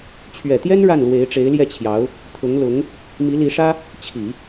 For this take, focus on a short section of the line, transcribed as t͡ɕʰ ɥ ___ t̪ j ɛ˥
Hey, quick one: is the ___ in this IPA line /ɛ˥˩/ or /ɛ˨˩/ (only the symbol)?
ɛ˨˩